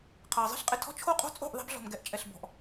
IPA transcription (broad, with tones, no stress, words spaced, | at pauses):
qʰʌː˩zˤi̤˥ɬqʼɪ˩tʰɔ̤˥ t͡ʃʰo˥qʼo̤˥ t͡sʼo̤˥˩ʔ ðˤi̤˧bɮɔ̤˩m ɡɛ˩˥ʔt͡ʃʼɛ˩ɬbɔ̤˩ʔ